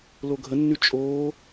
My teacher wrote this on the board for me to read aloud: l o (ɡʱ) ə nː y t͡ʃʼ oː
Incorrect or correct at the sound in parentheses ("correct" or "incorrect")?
correct